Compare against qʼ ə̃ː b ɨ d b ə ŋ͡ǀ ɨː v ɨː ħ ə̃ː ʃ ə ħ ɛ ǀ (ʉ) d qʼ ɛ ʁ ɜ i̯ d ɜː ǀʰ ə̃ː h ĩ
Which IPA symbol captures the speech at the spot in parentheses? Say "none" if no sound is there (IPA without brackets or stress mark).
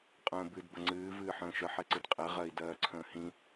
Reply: ɨ